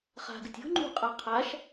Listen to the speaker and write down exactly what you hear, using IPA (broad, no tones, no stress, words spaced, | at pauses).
χa̤ɡɨtʲ o̤ ŋ͡ǃṳqʼa qʰaʃ